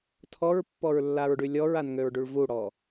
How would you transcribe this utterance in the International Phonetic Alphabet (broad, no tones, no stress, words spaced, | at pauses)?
tʰɔɹpːɔɹlːaɹɖy lʲɔɹanŋøɹɖyɭ vuɽɔ